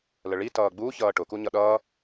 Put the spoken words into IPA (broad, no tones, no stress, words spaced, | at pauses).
ləɭi tʌːɡ͡bu çʌːʈʊ kuɲʌɗʌː